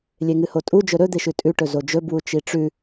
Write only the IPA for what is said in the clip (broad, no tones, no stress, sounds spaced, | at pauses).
lʲ e ŋ ɨ h o tʼ u d͡ʒ ɵ ɾ ɵ d̪ e ʃ ʉ tʼ ʉ ʈ ɵ z o d͡ʒ ɵ b w u t͡ʃ i ʈ͡ʂ ʉ